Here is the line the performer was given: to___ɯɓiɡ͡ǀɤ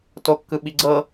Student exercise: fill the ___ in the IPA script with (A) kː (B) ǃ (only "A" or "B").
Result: A